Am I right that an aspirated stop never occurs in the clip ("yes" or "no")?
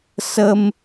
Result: yes